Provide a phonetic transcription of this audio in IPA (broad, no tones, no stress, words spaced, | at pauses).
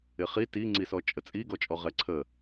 ɪχi tiŋ͡ǀisɔ t͡ʃʼət͡sʼi ɡɔt͡ʃʼɔʁɛǀʰə